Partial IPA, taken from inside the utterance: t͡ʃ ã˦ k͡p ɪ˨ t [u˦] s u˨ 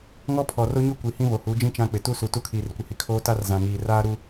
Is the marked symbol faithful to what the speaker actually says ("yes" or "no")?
yes